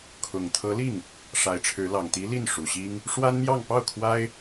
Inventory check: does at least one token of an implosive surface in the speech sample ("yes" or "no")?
no